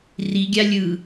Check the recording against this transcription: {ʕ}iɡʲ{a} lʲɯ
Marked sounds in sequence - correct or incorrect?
incorrect: r, correct

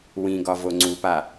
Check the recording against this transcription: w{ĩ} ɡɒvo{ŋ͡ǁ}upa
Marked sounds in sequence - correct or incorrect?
correct, incorrect: ŋ͡ǀ

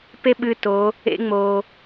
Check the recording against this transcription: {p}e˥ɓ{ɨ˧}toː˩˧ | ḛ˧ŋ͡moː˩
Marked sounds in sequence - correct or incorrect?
correct, correct

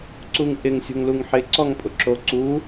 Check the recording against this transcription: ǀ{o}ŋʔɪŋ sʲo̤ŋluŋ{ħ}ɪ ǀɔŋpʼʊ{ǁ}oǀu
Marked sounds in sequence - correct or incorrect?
incorrect: u, correct, correct

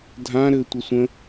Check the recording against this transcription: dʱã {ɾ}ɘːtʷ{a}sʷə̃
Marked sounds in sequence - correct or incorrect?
correct, incorrect: ʌ

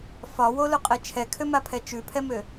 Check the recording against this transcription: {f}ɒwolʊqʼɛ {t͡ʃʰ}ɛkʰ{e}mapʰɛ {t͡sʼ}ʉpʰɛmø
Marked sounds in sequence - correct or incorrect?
correct, correct, incorrect: ø, incorrect: t͡ʃ

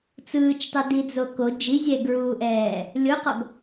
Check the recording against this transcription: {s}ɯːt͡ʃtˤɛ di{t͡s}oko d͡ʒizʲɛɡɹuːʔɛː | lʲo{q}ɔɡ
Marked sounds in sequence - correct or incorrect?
incorrect: t͡s, incorrect: d͡z, correct

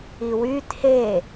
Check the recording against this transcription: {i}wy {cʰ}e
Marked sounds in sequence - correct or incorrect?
correct, incorrect: tʰ

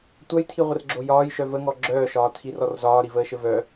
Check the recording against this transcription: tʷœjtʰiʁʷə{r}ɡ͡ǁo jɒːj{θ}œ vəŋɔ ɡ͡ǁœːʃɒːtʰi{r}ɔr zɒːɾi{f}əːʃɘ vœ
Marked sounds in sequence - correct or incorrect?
correct, incorrect: ʃ, correct, incorrect: v

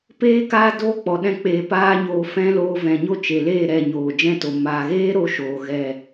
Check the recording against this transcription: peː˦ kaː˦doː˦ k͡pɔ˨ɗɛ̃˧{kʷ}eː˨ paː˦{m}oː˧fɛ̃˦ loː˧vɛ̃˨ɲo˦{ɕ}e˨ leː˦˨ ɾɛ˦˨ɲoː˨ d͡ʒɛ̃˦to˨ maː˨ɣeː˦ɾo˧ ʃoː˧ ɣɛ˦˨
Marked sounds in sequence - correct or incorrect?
incorrect: k͡p, incorrect: ɲ, incorrect: t͡ʃ

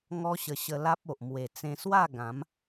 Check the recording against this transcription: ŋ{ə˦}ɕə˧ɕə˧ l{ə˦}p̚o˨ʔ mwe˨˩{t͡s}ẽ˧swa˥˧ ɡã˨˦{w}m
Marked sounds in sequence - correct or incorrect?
incorrect: ɔ˦, incorrect: a˦, correct, incorrect: none

